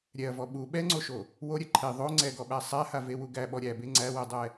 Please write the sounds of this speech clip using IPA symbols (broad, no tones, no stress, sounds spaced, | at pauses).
ɾʲ ɛ ɐ̯ v ɔ ɓ u ɓ ɛ ŋ͡ǀ o ʃ o | w o ɾʲ ɛ ǃʰ e ðˤ o ŋ͡ǀ ɛ ɡ ɔ ɓ æ sˤ æ h a v e w u ɡ æ ɓ ɔ ɾʲ æ b e ŋ͡ǀ æ w ɛ dˤ ɛ